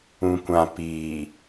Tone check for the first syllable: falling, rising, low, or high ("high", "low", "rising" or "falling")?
low